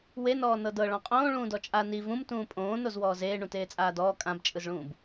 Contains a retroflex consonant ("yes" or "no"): yes